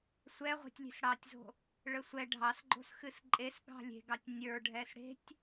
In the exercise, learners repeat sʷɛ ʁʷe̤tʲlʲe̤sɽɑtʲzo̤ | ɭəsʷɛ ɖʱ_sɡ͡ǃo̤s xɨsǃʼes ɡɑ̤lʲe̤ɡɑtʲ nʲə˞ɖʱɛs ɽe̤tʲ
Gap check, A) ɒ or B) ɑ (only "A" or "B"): B